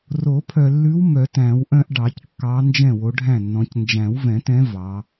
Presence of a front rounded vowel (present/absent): present